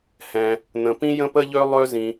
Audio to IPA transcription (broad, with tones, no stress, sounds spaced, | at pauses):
h ɛ̃˩ | n̪ ə̃˩ p ĩ˧ j ə̃˧ p ə˧ ʎ ø˧ lˠ ø˧ z ĩ˩